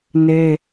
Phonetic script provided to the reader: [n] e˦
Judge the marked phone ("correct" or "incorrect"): correct